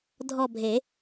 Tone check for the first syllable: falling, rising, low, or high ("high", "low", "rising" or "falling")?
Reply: falling